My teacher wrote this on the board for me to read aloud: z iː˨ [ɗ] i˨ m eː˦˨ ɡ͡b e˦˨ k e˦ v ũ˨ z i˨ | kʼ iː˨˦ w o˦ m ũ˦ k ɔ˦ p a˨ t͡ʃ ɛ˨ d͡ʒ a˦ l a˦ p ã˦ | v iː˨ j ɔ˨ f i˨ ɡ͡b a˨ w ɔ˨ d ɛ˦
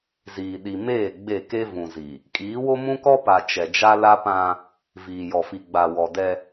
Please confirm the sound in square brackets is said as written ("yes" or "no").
yes